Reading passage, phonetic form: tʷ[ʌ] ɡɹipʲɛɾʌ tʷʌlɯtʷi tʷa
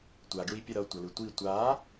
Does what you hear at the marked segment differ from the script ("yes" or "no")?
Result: yes